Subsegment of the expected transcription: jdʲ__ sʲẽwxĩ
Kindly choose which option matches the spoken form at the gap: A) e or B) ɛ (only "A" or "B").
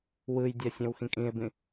B